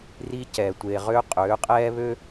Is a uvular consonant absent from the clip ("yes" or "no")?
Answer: no